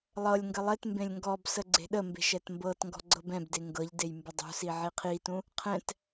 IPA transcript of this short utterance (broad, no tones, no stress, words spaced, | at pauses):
lˠɤlʲ ŋɡəlˠetmbẽlʲ ŋɡɔbsə ɡ͡ǀe̤ɗəmbe̤ ʃɛtmbɤtŋɡɔ̤ ɡ͡ǀɤbɛ̃bde ŋɡɤʎdej mbɪdˤṳsi ʕiqʰitũ | qʰɛ̃t